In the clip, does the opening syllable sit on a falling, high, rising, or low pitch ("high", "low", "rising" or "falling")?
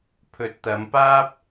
rising